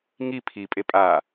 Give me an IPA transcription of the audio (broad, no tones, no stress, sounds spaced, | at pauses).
ŋ i pʰ i pʼ e pʼ a